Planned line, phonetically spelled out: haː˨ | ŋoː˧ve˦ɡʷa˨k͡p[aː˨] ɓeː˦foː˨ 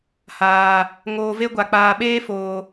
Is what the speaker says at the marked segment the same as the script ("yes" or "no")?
yes